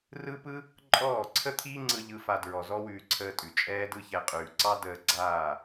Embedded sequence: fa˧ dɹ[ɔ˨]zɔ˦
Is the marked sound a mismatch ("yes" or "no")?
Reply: no